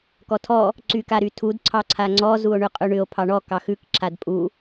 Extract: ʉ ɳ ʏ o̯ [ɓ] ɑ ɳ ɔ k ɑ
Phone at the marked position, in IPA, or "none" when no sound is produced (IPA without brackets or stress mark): pʰ